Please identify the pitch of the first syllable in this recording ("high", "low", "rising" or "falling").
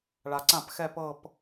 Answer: low